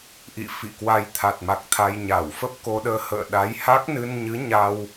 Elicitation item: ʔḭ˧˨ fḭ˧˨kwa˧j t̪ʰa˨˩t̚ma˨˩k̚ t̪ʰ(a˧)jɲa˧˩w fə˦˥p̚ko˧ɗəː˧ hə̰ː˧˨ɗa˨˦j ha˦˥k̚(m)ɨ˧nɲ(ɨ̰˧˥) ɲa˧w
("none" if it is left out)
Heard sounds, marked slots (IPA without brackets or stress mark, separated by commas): a˧, n, ɨ˨˦